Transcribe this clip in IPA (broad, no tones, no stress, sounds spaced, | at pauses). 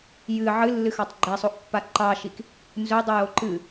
j ɨ ʕ ɨ lː ɨ x ɑ tˤ ɡ͡ǃ ɛ sˤ o ʔ pː a ǃ ɑ ʃ i k | n z ɵ dˤ ɨ j o ǃ ɨ